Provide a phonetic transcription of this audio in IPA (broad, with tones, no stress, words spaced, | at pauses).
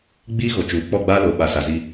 ɡ͡biː˦ ɣo˨t͡ʃuː˨ k͡pɔ˦˨ɡ͡baː˦loː˨ ɓa˨sa˨zi˦